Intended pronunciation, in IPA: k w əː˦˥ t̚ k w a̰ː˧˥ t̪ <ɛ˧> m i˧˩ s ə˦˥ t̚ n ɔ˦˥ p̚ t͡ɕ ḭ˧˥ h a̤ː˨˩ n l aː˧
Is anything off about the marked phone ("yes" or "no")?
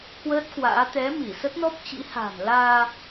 yes